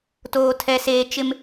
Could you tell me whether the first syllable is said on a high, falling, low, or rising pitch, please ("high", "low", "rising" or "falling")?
high